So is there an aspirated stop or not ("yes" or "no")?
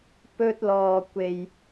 no